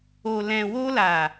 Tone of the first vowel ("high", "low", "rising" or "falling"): low